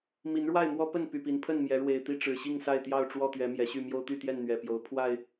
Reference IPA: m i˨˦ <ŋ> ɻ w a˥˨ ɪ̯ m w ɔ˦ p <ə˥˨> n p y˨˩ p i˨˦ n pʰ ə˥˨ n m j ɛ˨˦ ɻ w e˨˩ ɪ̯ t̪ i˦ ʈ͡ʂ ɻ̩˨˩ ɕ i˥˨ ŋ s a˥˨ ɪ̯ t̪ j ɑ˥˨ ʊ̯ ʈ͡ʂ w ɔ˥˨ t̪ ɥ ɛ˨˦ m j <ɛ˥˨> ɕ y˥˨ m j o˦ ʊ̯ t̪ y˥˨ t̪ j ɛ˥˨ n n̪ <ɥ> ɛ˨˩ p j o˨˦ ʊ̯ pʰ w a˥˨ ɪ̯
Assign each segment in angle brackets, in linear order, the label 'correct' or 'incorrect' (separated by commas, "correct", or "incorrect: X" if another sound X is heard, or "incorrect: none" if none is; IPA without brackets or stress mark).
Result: incorrect: n, correct, incorrect: ɛ˨˦, correct